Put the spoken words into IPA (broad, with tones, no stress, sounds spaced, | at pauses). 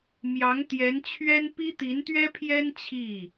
m j ɑ˧˥ ŋ t̪ j ɛ˧˥ n t͡ɕʰ ɥ ɛ˥ n p i˥ t̪ i˧˥ n t̪ ɥ ɛ˥ pʰ j ɛ˥ n t͡ɕʰ i˥˩